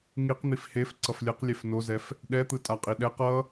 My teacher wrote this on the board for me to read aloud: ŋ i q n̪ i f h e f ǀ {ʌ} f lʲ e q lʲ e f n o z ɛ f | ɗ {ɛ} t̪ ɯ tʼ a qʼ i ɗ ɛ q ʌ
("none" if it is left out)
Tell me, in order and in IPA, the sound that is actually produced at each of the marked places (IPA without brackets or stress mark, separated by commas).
ʌ, ɛ